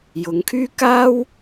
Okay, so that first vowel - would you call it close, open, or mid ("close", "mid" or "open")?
close